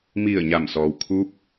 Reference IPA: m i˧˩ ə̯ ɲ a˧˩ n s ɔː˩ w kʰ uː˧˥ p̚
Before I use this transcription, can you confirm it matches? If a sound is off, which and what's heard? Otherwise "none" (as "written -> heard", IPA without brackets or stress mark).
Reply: n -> m